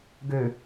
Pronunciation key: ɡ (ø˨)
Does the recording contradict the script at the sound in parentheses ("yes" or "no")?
no